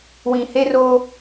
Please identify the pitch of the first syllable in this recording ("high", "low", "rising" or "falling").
low